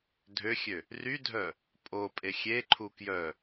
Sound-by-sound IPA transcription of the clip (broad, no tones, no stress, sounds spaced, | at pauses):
dʱ ø xʲ ø | r y dʱ œ | pʼ o pʼ e xʲ e ǃʰ u k j œ